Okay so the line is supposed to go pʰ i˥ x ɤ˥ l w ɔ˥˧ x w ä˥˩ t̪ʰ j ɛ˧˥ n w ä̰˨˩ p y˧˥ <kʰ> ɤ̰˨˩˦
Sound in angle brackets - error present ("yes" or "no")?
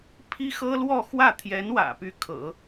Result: no